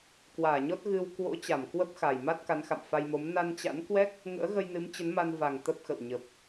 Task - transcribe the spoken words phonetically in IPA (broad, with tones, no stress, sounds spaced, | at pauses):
k w aː˧˩ ɲ ɔ˦˥ t̚ ɣ ɨ˧ w k w o̰˧˥ t͡ɕ a˧˩ m k w ə˦˥ p̚ x a˨˩ j m a˦˥ t̚ k a˨˦ n x a̰˧˨ m f a˧ j m o˨˦ m n a˧ n t͡ɕ a̰˧˥ n k w ɛ˦˥ k̚ | ŋ ə̰ː˧˥ ɣ ə˧ j n ɨ˨˦ m t͡ɕ ə˨˦ n m a˧ n v a˨˩ ŋ t̪ ə˦˥ p̚ x ə̰˧˨ w ɲ ə˨˩ p̚